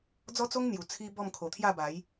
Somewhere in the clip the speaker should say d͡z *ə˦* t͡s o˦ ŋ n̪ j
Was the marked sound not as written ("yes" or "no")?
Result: yes